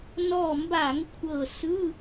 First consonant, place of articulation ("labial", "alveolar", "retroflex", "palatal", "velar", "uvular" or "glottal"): alveolar